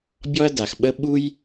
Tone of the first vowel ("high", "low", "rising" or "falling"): high